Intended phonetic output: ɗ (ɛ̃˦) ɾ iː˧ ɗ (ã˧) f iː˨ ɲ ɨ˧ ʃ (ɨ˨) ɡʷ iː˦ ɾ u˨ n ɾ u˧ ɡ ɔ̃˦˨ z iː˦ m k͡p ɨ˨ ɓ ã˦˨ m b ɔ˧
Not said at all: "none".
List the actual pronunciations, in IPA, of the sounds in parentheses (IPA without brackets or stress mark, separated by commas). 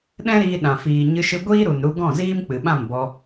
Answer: ɛ̃˦, ã˨, ɨ˧